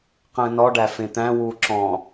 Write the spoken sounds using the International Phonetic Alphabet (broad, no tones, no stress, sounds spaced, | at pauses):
q ə̃ː n ɔ ɖ æ f ẽ t̪ æ̃ w uː ǁ ɔ̃